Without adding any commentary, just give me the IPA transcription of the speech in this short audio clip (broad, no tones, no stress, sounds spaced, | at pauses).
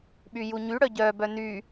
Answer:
ɓ y j u ɲ y ɽ œ ɟ œ b œ n y